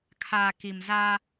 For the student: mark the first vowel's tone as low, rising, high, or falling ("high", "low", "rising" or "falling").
low